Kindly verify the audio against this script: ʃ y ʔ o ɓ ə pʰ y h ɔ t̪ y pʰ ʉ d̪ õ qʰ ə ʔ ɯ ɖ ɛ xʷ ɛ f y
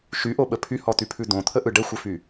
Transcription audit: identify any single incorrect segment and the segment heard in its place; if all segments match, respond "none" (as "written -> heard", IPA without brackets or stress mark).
qʰ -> t̪ʰ